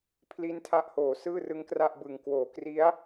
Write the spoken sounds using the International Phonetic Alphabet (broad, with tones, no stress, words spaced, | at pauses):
pʰli˦˥ntʰa˦˥ʔhoː˩˦ sɯː˥˩rɯ˦˥ŋkra˥˩ʔbɯ˨˩ŋ kwoː˩˦kri˦˥a̯